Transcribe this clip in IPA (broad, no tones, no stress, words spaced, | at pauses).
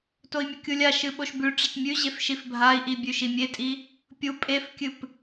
toi̯mʲɵkʲulʲa ʃɨɓoʃbʉ ʈ͡ʂɐtmʲʉʑef ʃifbʱai̯ʔibʲʉ ʃimʲetʼi | pʲu pʼefkʲɨp